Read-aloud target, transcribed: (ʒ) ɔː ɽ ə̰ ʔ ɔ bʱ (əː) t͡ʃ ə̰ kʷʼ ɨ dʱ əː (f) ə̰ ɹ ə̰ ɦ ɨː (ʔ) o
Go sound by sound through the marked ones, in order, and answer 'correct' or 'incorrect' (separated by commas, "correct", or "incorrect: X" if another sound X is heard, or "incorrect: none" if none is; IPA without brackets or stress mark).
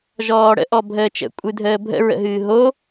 correct, correct, incorrect: bʱ, incorrect: ɦ